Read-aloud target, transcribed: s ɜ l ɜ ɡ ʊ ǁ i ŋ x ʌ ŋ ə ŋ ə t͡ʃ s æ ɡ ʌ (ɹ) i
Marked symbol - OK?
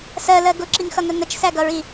yes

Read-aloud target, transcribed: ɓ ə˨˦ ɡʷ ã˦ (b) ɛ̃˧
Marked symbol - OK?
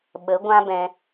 yes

